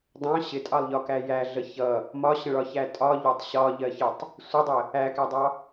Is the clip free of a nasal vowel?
no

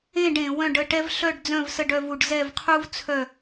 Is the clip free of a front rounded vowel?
no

